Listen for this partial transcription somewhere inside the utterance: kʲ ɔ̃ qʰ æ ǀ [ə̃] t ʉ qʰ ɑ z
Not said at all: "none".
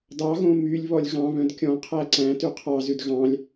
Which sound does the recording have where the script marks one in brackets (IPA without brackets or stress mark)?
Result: æ̃